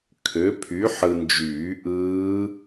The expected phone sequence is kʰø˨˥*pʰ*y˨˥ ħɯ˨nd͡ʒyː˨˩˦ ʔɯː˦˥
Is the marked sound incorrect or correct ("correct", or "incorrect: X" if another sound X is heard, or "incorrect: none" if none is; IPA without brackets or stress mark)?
correct